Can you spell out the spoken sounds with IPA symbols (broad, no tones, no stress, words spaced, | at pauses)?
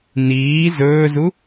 niː zɵːzu